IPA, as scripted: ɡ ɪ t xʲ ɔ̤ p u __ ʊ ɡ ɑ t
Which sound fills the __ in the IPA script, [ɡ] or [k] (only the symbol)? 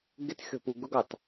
ɡ